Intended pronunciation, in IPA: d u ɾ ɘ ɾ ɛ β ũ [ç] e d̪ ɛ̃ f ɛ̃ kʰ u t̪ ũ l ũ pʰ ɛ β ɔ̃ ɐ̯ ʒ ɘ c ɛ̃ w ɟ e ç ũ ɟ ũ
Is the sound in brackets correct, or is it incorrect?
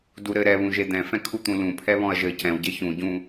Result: incorrect